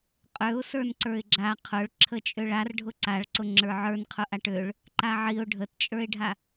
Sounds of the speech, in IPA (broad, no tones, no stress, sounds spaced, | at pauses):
qʼ ø ʊ̯ s ə˞ n ǀ ə˞ ɪ̯ ɡ͡ǁ a qʰ ʊ ɭ ǁʰ ə t͡ʃʼ ø ɭ a r ɖʱ ʊ ǀ a ɭ ǀ ʊ ŋ͡ǁ ə˞ ʕ ə˞ n qʰ ʊ ʔ a ʈ ø ɭ | ǃ a ʕ i ʊ̯ ɖʱ ə t t͡ʃʼ ə˞ ɪ̯ ɖʱ a